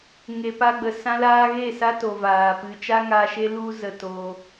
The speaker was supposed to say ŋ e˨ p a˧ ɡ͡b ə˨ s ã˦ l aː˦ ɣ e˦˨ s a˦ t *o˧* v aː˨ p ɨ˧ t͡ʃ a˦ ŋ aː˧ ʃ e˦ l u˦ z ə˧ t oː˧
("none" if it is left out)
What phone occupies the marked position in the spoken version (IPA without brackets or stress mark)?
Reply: o˨